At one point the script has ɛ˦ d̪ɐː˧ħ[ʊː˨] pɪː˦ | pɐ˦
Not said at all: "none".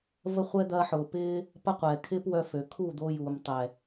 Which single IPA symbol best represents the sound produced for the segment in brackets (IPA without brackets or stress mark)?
ʊː˨